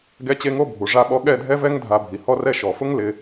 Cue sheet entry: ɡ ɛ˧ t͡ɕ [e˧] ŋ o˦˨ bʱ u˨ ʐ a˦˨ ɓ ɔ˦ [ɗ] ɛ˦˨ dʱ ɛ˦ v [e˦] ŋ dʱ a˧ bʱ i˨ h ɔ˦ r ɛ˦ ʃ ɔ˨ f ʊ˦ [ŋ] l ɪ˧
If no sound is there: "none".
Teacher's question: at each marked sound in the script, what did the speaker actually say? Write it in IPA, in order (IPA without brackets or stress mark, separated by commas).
e˧, ɠ, ɛ˦, ŋ